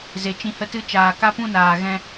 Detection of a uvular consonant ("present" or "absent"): absent